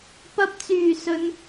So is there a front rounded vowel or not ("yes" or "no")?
yes